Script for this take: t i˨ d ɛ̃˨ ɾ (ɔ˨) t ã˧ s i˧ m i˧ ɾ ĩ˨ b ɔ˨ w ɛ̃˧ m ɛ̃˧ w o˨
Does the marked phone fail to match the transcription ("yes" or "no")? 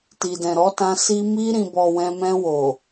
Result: yes